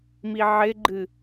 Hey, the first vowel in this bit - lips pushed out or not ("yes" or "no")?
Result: no